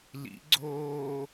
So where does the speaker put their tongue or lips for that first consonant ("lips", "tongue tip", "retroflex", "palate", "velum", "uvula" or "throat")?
tongue tip